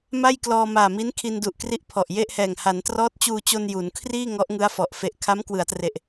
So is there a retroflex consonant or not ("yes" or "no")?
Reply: no